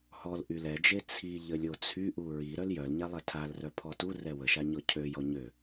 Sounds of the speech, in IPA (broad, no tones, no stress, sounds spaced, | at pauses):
h ɔ l ʔ y l ɛ d͡ʒ e t͡sʰ i ʎ ə lʲ o t͡sʰ y ʔ u ɹ i ɾ œ l j œ l ɲ a lˠ ɛ tʰ a l r œ pʰ ɔ t u r ɛ w ə ʃ a ɲ ɔ cʰ ø j ɔ ɲ ø